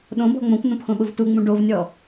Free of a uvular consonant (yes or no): yes